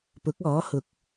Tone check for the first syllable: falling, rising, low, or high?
rising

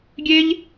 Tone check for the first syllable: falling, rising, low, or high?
high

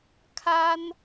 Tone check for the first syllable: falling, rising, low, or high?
high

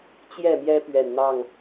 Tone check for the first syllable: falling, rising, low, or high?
falling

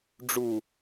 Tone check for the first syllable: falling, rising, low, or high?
low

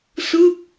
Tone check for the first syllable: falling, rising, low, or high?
falling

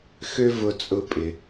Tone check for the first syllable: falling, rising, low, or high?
high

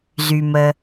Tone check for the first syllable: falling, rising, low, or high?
low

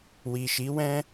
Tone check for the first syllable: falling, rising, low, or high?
low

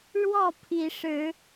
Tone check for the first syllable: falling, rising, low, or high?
falling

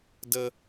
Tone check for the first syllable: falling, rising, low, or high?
high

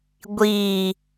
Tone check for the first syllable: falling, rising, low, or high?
low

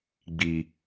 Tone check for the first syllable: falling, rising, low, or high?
high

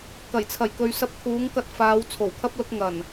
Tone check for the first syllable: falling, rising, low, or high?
low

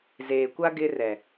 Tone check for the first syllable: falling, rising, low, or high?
low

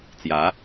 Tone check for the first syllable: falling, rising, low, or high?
rising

